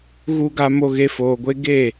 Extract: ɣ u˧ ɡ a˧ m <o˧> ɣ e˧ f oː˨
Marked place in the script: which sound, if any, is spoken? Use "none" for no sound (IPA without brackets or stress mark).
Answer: o˧